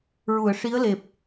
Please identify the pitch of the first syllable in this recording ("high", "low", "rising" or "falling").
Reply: low